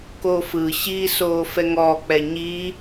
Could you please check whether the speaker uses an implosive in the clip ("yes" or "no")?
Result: no